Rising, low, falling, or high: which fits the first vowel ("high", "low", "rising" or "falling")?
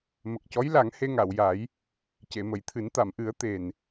low